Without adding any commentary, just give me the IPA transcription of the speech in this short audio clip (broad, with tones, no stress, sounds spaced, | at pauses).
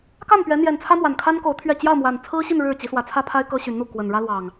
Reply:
k a˥˨ n p ɥ ɛ˨˦ n̪ j ɛ˨˩ n t͡sʰ ä˦ m w a˨˩ n kʰ a˦ n k o˨˦ ʊ̯ t̪ʰ ɥ ɛ˥˨ t͡ɕ j ɑ˥˨ ʊ̯ m w a˨˩ n t͡sʰ ɹ̩˦ ɕ i˥˨ n ɻ ɻ̩˥˨ t͡ɕ i˨˦ s w ä˨˦ t͡sʰ ä˦ pʰ a˦ ɪ̯ k ɤ˦ ɕ y˨˦ n n̪ u˥˨ k w ə˨˩ n ɻ ä˦ l w ɑ˨˩ ŋ